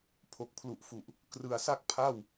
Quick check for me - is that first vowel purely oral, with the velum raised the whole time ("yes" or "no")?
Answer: yes